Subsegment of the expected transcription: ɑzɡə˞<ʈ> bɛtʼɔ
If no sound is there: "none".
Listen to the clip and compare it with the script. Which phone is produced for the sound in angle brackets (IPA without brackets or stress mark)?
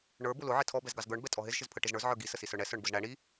ɳ